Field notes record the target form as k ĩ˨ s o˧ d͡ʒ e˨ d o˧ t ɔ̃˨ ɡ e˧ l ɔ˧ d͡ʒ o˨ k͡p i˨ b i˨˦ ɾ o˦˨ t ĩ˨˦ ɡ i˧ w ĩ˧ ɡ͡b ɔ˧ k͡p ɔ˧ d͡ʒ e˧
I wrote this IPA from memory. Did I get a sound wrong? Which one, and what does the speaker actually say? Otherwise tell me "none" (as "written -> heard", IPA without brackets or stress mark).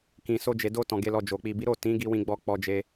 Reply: none